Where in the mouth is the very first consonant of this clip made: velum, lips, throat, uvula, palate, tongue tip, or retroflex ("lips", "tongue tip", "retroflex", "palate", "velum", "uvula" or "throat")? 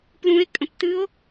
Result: lips